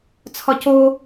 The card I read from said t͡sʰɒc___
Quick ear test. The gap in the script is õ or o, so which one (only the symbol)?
o